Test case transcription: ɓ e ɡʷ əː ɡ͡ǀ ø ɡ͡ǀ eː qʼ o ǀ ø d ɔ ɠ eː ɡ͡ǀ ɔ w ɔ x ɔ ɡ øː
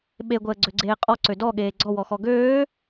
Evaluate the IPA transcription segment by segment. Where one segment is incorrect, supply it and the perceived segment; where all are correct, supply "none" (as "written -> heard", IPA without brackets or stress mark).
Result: o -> ɔ